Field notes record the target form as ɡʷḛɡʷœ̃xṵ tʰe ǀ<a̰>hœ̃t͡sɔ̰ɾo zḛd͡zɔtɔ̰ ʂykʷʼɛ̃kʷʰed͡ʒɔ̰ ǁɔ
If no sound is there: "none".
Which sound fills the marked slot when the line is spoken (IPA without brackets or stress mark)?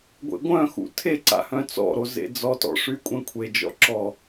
a̰